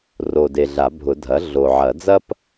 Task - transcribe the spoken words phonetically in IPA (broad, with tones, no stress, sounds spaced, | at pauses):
r o˨ d e˨ ɮ a˨˩˦ bʱ ʊ˨˩˦ dʱ ɐ˩˥ ɮ o˨ ʕ ɐ˨˩˦ d͡z ɐ˥ p